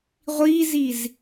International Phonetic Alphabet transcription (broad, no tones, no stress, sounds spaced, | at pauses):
ʁʷ iː z i z